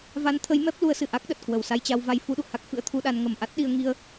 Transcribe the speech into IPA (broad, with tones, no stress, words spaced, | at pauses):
va˨˦nt̪ʰə˨˦j mɛ˦˥p̚ lu˨˦ə̯sɨ˧˩ʔa˦˥k̚ɗə˨˩t̚ kwə˨˩wsa˧jt͡ɕa˧w va˧j fu˧ɗṵ˧˨ə̯ha˦˥k̚ fɨ̰˧˥ə̯t̪ʰu˧ɗa˧n ŋə˨˩m ʔa˦˥t̚ɗi˧ə̯ ŋi˧ə̯